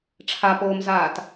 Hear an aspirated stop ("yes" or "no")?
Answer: yes